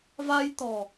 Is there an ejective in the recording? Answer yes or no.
no